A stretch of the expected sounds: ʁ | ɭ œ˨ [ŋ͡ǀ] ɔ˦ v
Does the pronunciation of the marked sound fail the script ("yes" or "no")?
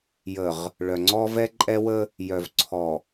no